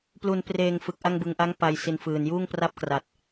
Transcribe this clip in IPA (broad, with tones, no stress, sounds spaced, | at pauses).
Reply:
p l u˩˦ n p r eː˨˩ ŋ f ɯ˨˩ k̚ ʔ a˥˩ ŋ b ɯ˨˩ ŋ ʔ a˦˥ ŋ p a˧ j s i˧ n f ɯː˨˩ n j uː˥˩ ŋ p r a˥˩ p̚ k r a˨˩ t̚